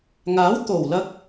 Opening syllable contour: rising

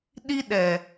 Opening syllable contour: high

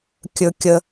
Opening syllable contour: low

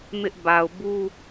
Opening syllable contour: high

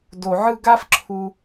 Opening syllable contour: low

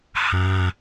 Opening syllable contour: high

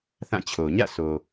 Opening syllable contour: falling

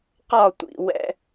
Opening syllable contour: falling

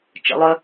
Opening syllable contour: rising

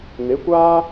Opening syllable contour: rising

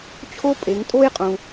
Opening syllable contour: high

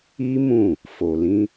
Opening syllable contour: high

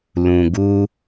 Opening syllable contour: low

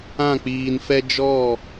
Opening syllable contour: falling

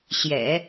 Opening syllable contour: low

